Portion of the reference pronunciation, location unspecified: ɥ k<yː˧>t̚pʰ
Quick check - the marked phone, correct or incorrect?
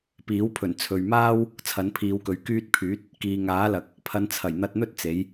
correct